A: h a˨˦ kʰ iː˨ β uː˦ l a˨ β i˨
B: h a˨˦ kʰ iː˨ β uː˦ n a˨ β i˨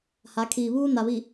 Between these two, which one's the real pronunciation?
B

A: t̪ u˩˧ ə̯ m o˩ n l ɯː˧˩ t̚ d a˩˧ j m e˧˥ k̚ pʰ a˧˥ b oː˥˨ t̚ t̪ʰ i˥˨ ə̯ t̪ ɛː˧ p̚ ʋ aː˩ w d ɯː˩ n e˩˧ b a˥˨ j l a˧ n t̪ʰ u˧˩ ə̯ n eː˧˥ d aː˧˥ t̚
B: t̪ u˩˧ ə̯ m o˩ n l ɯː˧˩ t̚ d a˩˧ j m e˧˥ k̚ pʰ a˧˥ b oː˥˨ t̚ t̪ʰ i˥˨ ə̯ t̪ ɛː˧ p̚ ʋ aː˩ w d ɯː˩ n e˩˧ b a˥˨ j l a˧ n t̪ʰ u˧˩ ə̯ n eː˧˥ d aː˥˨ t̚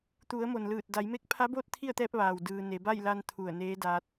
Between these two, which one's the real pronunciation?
A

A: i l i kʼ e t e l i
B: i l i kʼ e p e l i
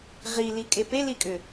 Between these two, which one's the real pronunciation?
B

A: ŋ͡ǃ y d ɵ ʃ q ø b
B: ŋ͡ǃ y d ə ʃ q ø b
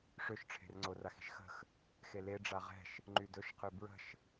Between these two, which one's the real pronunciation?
A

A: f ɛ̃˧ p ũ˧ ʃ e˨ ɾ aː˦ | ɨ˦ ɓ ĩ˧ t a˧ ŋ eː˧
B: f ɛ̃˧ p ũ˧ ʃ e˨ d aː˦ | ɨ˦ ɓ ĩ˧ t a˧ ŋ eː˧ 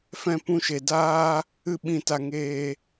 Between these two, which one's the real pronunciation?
B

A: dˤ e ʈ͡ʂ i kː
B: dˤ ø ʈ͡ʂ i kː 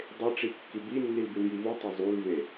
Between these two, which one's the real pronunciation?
A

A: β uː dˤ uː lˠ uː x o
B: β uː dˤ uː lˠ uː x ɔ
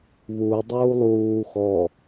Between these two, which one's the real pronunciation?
B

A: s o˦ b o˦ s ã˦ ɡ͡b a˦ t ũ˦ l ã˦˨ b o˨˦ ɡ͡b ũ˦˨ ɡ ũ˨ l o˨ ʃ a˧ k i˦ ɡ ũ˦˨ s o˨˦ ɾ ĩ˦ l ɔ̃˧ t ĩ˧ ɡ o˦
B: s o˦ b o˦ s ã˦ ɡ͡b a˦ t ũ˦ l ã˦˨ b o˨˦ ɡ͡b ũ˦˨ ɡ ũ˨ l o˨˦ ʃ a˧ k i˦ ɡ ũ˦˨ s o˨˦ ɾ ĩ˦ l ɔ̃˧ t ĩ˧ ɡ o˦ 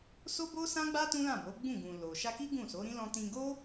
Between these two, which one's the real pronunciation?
A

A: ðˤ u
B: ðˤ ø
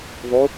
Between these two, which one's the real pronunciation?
A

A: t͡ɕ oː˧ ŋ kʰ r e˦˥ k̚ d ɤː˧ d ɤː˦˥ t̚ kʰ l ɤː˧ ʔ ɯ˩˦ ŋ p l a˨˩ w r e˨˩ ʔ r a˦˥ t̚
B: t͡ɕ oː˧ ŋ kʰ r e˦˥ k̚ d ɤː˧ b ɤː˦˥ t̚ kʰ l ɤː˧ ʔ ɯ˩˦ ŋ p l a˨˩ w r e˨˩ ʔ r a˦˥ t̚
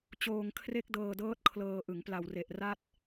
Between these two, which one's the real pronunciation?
A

